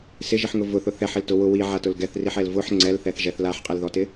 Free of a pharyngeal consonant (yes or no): no